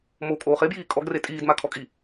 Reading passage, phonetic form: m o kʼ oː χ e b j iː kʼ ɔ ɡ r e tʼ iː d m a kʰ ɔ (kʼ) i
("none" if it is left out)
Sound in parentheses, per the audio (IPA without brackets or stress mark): kʼ